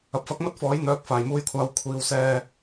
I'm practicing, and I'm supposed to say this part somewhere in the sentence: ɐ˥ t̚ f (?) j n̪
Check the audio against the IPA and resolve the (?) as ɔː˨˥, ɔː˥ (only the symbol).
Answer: ɔː˨˥